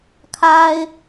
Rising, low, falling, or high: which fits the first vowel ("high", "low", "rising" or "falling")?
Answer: high